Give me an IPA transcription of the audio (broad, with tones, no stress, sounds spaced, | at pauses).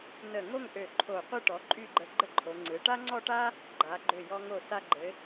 n ə˧˩ ŋ o˥˧ ŋ ʔ ø˧˩ ǃʰ o˧˩ qʷ ɯ˥˧ ʈ ɔ˩˧ ǃʼ y˥˧ ɡ͡ǃ ə˧ ɡ͡ǃ ə˥ ǃʰ o˩˧ ŋ͡ǀ ɯ˩˧ ʈ a˥ ŋ͡ǀ ɔ˥˧ ʈ a˥ | ɡ͡ǃ a˩˧ ɡ͡ǃ ø˧˩ j ɔ˧ ŋ o˧˩ s a˧ ɡ͡ǃ ɘ˩˧